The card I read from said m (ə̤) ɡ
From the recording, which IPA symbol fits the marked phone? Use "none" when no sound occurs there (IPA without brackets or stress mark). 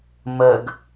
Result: ə